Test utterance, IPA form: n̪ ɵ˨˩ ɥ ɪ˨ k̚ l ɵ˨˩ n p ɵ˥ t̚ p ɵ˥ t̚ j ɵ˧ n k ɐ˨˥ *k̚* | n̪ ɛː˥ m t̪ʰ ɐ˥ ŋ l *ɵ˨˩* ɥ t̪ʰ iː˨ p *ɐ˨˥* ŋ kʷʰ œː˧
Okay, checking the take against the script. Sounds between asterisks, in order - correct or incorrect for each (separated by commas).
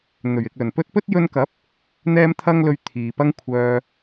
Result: incorrect, incorrect, incorrect